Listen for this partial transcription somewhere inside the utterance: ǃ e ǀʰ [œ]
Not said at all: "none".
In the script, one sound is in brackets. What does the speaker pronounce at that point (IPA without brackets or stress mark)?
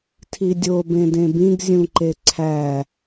æ